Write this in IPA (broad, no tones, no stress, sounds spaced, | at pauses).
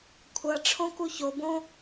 kʷʰ ʌ ʈ͡ʂʰ õ k u ç o b õ